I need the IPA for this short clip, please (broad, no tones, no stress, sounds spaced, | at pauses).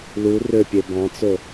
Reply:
l u r ø pʲ e b ɑ̃ t͡s o